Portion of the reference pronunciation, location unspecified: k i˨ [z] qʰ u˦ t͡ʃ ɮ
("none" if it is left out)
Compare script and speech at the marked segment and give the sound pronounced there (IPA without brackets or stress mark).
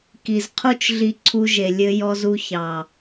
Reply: z